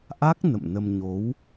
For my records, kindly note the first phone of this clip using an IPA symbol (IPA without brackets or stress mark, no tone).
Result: ʔ